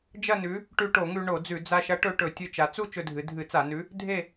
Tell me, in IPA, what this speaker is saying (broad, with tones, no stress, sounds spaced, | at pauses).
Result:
d͡ʒ ɐ˥˧ n ʉ˨˥ | ʈ ʉ˧ ʈ o˧˩˧ ŋ ʉ˧ ɳ o˧˩˧ d͡z ʉ˧˩˧ d͡z a˧ ʃ ɐ˨˥ ʈ ɵ˧ ʈ ɵ˧˩˧ tʲ ɨ˧ t͡ʃ a˩˧ t͡s u˥˧ t͡ʃ ɵ˧ dʱ ɨ˩˧ dʱ ɨ˧˩˧ t͡s a˧˩˧ n ʉ˨˥ | dʱ e˥˧